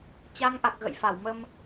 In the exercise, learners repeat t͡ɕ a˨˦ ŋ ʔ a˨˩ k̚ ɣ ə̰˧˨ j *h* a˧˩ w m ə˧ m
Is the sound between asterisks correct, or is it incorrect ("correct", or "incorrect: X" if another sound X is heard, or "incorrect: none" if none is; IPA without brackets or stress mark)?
incorrect: f